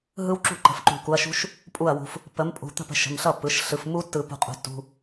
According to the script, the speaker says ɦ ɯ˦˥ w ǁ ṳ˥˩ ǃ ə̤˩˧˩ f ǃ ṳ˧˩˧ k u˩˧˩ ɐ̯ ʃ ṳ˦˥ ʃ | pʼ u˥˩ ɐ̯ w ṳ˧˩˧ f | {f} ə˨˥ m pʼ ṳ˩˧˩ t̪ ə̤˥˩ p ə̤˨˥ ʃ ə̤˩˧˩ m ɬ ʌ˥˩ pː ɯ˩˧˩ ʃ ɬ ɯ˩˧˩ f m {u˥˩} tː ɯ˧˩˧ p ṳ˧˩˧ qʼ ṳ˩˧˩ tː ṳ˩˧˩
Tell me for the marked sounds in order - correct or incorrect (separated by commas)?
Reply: incorrect, incorrect